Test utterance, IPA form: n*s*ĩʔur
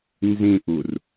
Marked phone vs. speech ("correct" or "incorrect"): incorrect